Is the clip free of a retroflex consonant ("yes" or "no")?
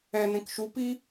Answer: yes